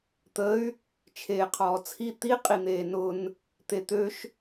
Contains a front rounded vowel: yes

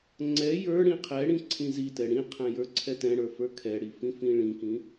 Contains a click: yes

